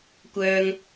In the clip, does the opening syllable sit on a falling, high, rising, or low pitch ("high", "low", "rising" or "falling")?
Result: high